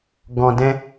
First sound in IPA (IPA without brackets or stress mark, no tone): ɡ